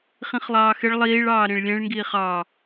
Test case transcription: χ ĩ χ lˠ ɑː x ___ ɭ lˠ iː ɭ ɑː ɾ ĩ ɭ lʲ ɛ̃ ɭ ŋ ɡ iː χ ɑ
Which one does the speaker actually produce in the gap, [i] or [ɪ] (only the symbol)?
ɪ